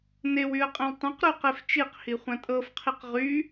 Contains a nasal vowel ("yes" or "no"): yes